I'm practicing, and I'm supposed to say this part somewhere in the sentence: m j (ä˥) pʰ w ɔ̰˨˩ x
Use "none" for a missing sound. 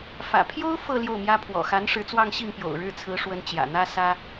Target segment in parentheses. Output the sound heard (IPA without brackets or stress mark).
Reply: ä˥